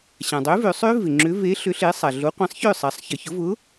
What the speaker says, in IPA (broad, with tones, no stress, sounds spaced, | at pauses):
ɕ ã˩ dˤ ø˨˥ v ø˩˧ sˤ ø˦˥ v ɪ˩ ŋ͡ǁ ʏ˨˥ v e˨˥ ɬ ʏ˨˥ ɬ e˨˥ sˤ a˩ ɮ o˨˥ qʷ ɛ̃˨˥ sˤ ç ʏ˥˩ sˤ a˩˧ sˤ ç ə˩ ç ʊ˨˥ v ʊ˨˥